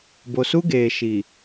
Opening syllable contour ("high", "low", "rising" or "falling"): low